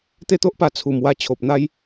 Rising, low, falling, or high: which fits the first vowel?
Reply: falling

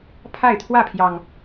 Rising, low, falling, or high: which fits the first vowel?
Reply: falling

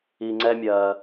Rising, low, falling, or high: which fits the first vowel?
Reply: low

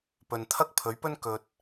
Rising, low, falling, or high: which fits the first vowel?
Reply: low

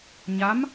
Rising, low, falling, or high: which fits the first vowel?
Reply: rising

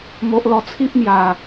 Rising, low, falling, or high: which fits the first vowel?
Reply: low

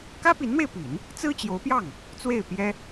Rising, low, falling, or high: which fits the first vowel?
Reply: high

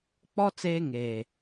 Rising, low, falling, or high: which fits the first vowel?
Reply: high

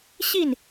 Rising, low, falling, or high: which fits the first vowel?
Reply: falling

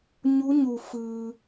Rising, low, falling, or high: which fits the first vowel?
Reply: rising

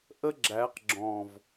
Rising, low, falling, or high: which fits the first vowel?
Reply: high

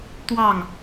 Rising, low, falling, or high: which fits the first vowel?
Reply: falling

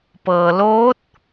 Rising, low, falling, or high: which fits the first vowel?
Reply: low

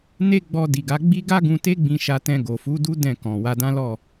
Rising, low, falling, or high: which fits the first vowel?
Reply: high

